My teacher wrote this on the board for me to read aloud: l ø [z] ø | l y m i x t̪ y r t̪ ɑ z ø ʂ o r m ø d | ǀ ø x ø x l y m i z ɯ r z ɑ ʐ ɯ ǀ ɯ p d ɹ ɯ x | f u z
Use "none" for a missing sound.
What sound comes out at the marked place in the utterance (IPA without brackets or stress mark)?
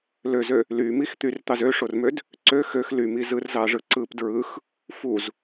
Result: z